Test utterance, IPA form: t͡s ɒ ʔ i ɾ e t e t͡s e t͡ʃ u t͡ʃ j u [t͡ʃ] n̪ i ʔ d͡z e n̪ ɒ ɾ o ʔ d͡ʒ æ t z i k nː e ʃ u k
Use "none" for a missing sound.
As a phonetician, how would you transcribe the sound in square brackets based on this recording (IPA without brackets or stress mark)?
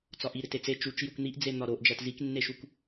k